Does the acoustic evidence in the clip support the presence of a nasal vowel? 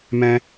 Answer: yes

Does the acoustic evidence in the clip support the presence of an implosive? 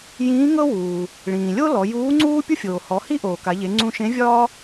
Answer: no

